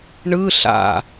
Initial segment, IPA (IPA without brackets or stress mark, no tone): ɳ